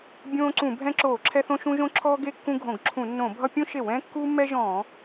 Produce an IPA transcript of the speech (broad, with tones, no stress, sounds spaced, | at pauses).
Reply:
bʲ õː˦ ǀ ũ˧˩˧ bʱ ɛ̃˦ ǁ oː˧˩˧ ǁʰ ɛ˦ θ õ˦ ʃ ũ˦ ʒ õ˦ ǁʰ ɔː˦ ɡ e˦ kː ũ˦ ɡʱ õ˧˩˧ ɡ ǁʰ ũ˧˩˧ nː õ˧˩˧ bʱ ʌ˦ pʲ ũ˦ ʃ e˧˩˧ w ɛ̃ː˦ kː uː˦ mː ɛ˦ ʒ ɔ̃ː˧˩˧